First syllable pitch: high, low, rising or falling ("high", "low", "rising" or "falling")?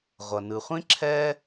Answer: low